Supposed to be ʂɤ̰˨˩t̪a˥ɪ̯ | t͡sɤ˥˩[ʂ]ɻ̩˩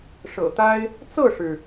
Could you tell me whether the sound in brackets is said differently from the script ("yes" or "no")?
no